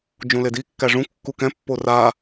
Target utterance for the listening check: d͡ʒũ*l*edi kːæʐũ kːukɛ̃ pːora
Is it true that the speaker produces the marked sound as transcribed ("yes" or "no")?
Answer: yes